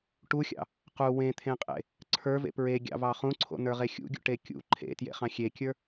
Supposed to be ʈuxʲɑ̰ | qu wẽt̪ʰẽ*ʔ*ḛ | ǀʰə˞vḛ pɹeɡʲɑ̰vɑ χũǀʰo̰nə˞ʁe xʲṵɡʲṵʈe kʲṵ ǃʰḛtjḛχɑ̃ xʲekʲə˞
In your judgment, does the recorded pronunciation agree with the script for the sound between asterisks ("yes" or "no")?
no